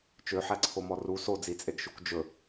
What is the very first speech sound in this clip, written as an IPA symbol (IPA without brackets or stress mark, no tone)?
t͡ʃ